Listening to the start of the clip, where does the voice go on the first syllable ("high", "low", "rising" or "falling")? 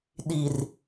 low